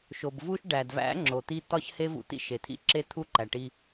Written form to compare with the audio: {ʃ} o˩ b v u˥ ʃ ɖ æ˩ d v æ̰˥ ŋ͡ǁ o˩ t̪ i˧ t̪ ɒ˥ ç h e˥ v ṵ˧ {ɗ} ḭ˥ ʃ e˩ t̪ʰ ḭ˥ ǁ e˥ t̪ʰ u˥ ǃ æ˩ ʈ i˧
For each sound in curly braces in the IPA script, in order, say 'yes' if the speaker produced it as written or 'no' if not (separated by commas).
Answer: yes, no